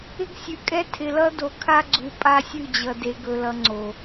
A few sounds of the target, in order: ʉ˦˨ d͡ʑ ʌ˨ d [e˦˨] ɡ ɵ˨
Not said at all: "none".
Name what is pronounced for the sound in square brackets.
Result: e˨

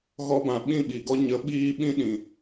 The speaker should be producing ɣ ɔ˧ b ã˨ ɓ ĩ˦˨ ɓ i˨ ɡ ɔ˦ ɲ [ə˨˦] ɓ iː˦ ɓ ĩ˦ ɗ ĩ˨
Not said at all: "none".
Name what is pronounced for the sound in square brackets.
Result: ə˨˦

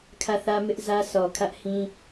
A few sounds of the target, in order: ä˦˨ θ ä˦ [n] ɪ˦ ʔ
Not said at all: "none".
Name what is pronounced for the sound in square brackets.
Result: m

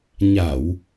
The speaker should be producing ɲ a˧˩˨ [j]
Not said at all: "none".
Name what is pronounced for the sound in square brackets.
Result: w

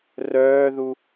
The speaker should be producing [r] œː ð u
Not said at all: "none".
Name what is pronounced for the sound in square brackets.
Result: r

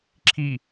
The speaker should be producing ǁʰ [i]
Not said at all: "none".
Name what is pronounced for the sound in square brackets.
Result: i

